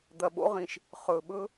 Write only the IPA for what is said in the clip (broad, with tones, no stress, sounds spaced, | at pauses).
d̪ ɐ˨ ɓ o̰˦ ʁ ĩ˨ ʃ | χ ɵː˨ ɓ ɵ˦